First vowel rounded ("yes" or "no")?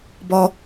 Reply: yes